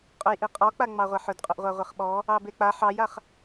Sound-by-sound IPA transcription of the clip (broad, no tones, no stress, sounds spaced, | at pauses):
qʼ ɵ j ʔ i qʼ ɔ k͡p a ŋ͡m ɑ ʁʷ a ħ ɵ d qʼ ɵ ʔ ʁʷ a ʁʷ e χ ɓ ɔ | ɑ b e k͡p a ħ ɑ j a χ